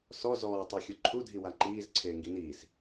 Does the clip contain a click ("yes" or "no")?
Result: yes